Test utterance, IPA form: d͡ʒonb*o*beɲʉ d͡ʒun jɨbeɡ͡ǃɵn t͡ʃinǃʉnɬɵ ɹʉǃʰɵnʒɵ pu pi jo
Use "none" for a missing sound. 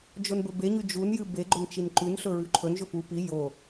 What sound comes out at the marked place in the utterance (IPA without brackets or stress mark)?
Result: ɵ